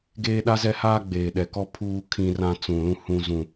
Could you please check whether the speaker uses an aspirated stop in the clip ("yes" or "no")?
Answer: yes